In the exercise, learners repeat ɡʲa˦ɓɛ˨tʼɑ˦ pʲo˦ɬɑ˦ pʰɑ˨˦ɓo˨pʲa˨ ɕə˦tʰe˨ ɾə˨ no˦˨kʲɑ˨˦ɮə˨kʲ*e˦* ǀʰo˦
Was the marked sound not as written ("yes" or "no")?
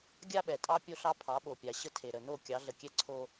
yes